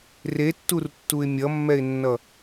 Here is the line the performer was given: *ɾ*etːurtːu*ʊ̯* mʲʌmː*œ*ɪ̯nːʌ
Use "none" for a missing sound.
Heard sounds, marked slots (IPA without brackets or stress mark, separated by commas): r, ɪ̯, ɛ